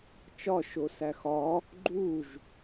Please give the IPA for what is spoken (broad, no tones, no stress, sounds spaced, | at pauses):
t͡ʃ ɒ ʃ o s æ x ɒ | ɡ͡ǃ u ʒ